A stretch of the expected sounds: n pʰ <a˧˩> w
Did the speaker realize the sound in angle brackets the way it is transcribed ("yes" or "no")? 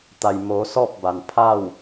no